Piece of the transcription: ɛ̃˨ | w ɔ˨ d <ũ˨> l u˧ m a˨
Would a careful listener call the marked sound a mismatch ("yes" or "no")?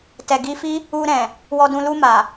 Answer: no